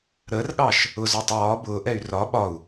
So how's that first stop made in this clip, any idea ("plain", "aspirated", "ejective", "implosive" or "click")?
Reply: implosive